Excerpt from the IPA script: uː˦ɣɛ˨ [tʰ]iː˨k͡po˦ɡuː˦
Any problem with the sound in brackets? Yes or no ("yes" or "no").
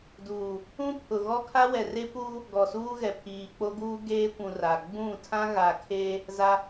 yes